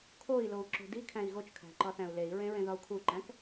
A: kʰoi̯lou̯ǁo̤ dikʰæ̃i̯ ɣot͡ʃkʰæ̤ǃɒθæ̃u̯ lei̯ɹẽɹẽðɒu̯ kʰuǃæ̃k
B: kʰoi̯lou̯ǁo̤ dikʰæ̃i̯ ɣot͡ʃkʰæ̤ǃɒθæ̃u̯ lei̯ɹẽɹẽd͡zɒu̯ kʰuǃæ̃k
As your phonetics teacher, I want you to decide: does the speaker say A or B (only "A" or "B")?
A